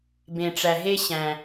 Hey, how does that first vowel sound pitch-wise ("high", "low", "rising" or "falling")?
low